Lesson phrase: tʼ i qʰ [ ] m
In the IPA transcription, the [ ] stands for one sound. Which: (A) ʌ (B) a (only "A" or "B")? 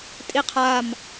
B